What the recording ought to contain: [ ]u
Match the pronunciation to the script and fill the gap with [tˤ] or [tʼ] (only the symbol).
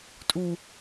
tʼ